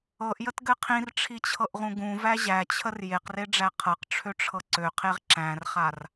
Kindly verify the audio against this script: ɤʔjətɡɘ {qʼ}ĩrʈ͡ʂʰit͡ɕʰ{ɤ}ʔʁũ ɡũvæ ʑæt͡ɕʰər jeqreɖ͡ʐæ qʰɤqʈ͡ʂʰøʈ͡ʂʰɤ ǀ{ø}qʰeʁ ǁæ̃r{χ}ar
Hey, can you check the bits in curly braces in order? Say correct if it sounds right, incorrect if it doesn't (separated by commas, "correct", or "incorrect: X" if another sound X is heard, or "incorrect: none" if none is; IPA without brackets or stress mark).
incorrect: qʰ, correct, correct, correct